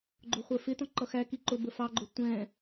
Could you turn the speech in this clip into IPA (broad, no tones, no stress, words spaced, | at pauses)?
ɡ͡ǃʊχʷə˞fɪtɔ̃ ǃʌxæki ǃʊ bəfɑɡ͡ǃʊ tʷɛ̃